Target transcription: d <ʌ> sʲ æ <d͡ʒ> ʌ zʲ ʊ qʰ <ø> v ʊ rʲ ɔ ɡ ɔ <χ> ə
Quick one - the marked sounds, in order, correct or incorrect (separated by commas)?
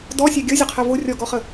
incorrect, incorrect, incorrect, correct